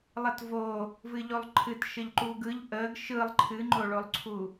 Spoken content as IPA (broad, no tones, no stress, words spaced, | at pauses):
lˠətvo | vɨʎolˠǃʰɨtʃəʎ ǃuɡɯʎ ʔəɡ ʃɯlˠ ǃʰɨŋ͡ǃoɭolˠǀʰu